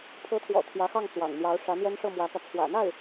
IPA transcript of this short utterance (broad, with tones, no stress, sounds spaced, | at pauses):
pʰ ɤ˧˥ t̪ʰ w ɔ̰˨˩ t̪ʰ j ä˧˥ x ɑ˥˩ ŋ t͡s w ɑ̰˨˩ ŋ n̪ j ɑ˧˥ ʊ̯ ʂ ä˧˥ n̪ j ɛ˥ n ʂ ɤ˥˩ m w ä˧˥ k ä˧ t͡sʰ w ä̰˨˩ n̪ a˥˩ ɪ̯